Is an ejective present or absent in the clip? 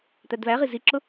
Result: absent